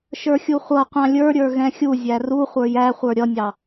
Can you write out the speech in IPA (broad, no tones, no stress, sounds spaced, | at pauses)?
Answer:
ʃ ə˞ xʲ u χʷ ʌ qʷ ɑ̃ lʲ ə˞ ɾʲ ə˞ ɣ ɛ̃ xʲ u zʲ æ r u χʷ ə˞ j æ χʷ ə˞ ɾʲ ʌ nʲ ɑ